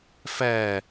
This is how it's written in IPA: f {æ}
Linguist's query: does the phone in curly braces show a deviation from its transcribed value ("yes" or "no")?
no